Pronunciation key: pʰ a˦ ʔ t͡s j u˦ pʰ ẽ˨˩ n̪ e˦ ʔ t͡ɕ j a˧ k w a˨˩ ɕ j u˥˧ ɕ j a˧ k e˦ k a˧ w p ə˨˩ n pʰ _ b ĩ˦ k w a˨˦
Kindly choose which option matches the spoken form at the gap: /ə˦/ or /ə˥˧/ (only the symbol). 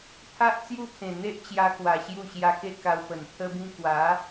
ə˦